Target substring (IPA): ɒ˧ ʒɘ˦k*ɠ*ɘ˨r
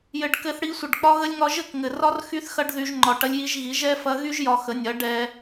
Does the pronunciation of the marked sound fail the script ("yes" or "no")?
yes